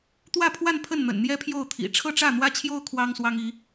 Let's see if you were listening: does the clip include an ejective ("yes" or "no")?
no